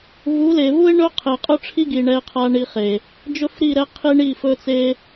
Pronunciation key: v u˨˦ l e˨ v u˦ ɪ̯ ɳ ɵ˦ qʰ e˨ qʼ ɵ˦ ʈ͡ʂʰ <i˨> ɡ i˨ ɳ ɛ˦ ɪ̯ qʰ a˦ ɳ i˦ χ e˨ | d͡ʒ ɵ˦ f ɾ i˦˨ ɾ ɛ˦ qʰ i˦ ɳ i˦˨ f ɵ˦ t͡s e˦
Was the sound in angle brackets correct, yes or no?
no